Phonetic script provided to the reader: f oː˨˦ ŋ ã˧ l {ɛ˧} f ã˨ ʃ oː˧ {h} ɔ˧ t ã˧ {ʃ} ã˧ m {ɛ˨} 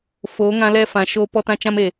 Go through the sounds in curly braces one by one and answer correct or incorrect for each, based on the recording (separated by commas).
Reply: correct, incorrect, incorrect, incorrect